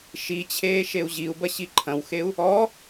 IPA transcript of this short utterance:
ʃit͡ɕʰeː ʃeu̯ʑiu̯bɐ ɕiǃʰɐ̃wxeu̯ | ɔ

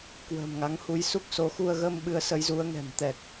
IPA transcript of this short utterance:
kwə̤ː˨˩mŋa˨˦ŋhu˨˦j su˦˥k̚so˨˦ xu˧ə̯ɣəː˧m ɓɨ˨˦ə̯sə˨˦jzu˨˦ə̯ŋɛ̤˨˩m t̪ɛ˨˩k̚

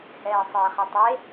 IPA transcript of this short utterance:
hɛːsˤɘːχɛtˤe

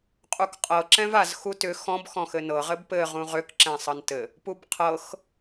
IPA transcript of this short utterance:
qʼukqʼɤ ǁɛ̃vazxu tʏ xɔ̃bxɔ̃ xɘnɤ ʁɘbpɘ ʁũʁʏk ǁɛ̃sˤɤntɘ | pubqʰɤx

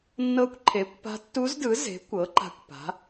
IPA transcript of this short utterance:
nːɤ˧˥kʷǃʰe˩˥kʷpa̤˧˥ tːu˧˥zdɯ˩˥ze̤˩˥ kʷɤ˩˥ ǃa̤˧˥kʷpa̤˩˥

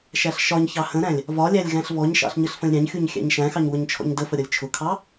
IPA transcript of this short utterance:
ʃæɬʃɒɲçɑ hə̃ɾæ̃lʲ | vɒlʲælʲ ɣæ̃ɬvɔɲʃɑ̰ɬ ɲəɬfə̃lʲɾʲɑ̃ɲxʲuɲ xʲæ̰ɲʃæ̃xɑɲ wʊɲt͡ʃʰɔ̰ɲdəfə ɾʲʌlʲt͡ʃʰʊkʰɑ

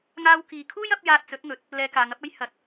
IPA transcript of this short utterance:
ŋaː˧wkiː˨kʰuː˥j ɐ˨˥p̚jaː˧t̚t͡sɵ˨˥t̚ŋɵ˨˥t̚ | lɛː˧kaː˨˧ŋɐ˨˥p̚ɐ˥j hɐ˨˥t̚

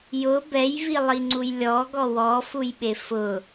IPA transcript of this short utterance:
jʊ bɛjvilˠiŋ͡ǀuj lʲɔɡɔ wɔfujɓe fʊ

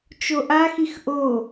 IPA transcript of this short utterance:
t͡ʃoʔaxix ʔo

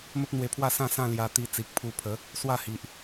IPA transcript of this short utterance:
mə˦p̚n̪we˧pʰwa˥˧sã˥˧ sã˥˧ lja˧t̪i˧t͡si˨k̚ pʰu˧pʰə˨˦ | swa˥˧hi˨ʔ

